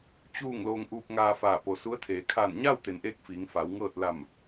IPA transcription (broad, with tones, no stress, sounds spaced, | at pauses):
t͡ɕ uː˥˨ ŋ l oː˧ ŋ ʔ uː˧ p̚ ŋ aː˧ f aː˧˩ p o˩˧ s u˧˥ ə̯ t̪ʰ eː˩˧ kʰ aː˧˩ n ɲ aː˥˨ w t̪ e˩ n ʔ eː˧ k̚ f iː˩˧ ŋ f a˩˧ w ŋ ɤː˥˨ t̚ l a˧˩ m